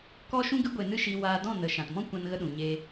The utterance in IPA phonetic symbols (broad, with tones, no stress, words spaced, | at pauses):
kɔ˦ʃũ˦ɡɨ˦ ɡʷe˧nɨ˦ʃi˧ waː˧ dɔ̃˦˨nə˨ ʃã˨tmɔ̃˦ kʷã˧nɣə˧ɗũ˨ ɲe˧